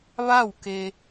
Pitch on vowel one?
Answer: falling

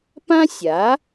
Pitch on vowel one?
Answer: high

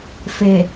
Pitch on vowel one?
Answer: low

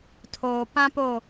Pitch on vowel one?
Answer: low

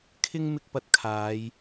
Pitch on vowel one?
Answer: high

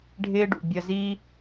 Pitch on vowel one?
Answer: high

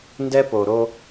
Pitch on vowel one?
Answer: high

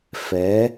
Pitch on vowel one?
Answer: rising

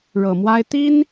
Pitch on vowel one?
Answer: low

